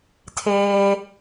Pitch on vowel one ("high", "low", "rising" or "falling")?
high